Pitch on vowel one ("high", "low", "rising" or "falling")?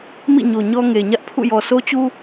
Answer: falling